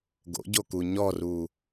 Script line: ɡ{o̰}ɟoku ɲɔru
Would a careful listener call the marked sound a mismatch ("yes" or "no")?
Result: no